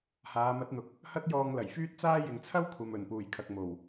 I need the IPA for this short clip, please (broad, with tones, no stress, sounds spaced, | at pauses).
h aː˨˧ m ɐ˨˥ t̚ n̪ ʊ˨ k̚ | h ɐ˥ t̚ j ɔː˧ ŋ l ɐ˨˩ j f yː˥ t̚ t͡s aː˥ j ɪ˨ ŋ t͡sʰ ɐ˥ w kʷʰ ɐ˨ m ɵ˨˩ n p uː˨˩ j kʰ ɐ˨ k̚ m o˨˩ w